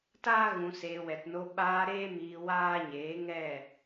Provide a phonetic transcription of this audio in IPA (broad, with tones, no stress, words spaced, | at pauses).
taː˦ɣũ˨seː˨ wɛ˨tno˧ ɓaː˧ɾeː˦ miː˧ waː˦ɲeː˨˦ ŋɛ˦˨